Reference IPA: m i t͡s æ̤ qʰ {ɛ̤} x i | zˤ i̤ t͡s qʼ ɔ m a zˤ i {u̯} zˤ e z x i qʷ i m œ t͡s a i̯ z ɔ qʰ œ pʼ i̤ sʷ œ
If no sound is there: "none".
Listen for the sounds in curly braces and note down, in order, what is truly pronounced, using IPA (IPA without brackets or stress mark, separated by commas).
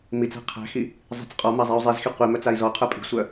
æ̤, u̯